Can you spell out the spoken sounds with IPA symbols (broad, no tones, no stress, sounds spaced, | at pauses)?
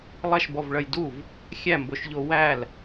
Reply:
lˠ ɐ ʃ b ɔ v ɭ ɐ j d u v | xʲ æ m b o ʃ ʎ o w æ l